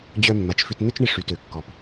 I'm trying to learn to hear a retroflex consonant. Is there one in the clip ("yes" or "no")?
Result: yes